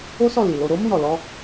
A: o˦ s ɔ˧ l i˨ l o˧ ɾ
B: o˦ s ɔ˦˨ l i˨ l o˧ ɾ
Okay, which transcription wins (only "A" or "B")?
B